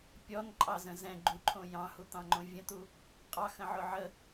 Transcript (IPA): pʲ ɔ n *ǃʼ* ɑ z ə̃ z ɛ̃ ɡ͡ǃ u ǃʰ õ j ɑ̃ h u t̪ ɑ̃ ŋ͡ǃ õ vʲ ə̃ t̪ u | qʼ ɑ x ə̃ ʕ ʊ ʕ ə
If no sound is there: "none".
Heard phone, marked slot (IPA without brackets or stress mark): ǃʼ